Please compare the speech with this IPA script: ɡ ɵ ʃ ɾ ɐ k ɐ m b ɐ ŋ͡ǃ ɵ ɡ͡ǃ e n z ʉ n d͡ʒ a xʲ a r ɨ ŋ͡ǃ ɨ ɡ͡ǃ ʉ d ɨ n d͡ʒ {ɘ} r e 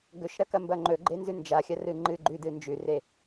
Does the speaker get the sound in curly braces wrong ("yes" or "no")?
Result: yes